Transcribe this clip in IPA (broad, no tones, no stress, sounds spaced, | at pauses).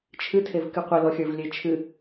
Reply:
t͡ʃʰ ɨ tʰ e v k ɨ qʷ ɪ l ɔ xʲ ə˞ v lʲ e t͡ʃʰ ɨ